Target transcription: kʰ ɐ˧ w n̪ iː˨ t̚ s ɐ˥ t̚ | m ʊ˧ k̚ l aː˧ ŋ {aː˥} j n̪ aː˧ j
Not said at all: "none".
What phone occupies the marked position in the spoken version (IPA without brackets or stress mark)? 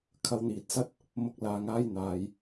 aː˥